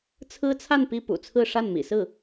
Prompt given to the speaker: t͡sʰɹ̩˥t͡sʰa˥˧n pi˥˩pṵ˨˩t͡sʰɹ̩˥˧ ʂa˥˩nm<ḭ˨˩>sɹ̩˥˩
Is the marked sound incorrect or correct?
correct